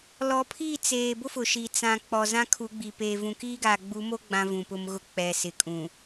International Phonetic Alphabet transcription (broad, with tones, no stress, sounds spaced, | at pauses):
l ɔ˨˦ pʰ i˦˨ t͡s eː˨ b ʊ˦ f ʊ˨ ʃ iː˨ t͡s ã˨ k͡p ɔ˨ z ã˦ kʰ u˨˦ ɡ͡b i˨ p eː˨ v ũ˨ k iː˦ ɡ aː˨ ɡ͡b u˨˦ m o˦ ɡ͡b ã˦ v ũ˨ p ʊ˦ m ɣ ʊ˦˨ k͡p ɛ˨ s ɪ˨ kʼ ũ˨